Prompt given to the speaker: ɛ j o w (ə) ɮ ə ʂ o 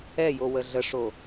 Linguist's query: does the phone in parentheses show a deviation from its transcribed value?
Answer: no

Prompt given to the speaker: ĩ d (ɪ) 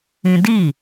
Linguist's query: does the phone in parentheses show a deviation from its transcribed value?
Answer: yes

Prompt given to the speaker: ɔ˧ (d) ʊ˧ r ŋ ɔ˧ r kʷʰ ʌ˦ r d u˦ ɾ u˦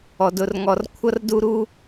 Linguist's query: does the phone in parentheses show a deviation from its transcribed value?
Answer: no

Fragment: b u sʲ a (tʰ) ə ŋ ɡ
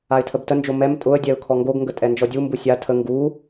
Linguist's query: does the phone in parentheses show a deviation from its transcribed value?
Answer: no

